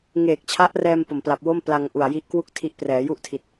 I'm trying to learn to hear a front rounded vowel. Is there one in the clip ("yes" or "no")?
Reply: no